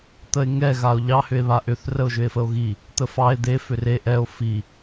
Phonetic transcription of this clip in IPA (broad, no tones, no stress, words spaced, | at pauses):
t̪əe̯ŋɛ ɣao̯ʎɑ hʏe̯βaʔʏθ rəo̯ʒʏe̯fəo̯ɣi | t̪əfɑe̯ d̪e fʏre ʔɛo̯ fi